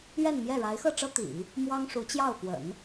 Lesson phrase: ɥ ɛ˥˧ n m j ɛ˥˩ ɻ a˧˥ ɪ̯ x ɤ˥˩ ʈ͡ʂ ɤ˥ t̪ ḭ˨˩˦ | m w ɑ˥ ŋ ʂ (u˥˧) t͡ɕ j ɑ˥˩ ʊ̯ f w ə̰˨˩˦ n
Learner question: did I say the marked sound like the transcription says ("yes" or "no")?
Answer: no